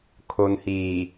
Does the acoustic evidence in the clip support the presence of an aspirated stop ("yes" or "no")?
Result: yes